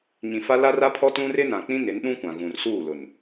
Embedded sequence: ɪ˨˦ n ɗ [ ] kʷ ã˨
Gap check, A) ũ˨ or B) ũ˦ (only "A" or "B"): B